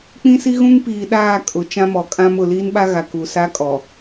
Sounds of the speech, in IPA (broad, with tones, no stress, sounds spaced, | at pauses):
k͡p ĩ˦ s i˦ ɣ ũ˦ ŋ p iː˨ ɗ aː˦˨ kʼ ʊ˨˦ t͡ʃ ã˦ m ɔ˨ kʼ ã˦ m ʊ˨ l i˦ n ɓ a˦ ɣ a˨ k u˨ s a˦ kʼ ɔ˨